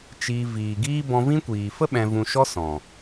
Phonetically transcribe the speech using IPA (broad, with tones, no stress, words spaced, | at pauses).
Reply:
t͡ʃiː˧ viː˨ɡiː˦ bɔ̃˧vĩ˦kʷiː˨ fə˦ ɓɛ̃˧vũ˧ʃɔ˦sɔ̃˨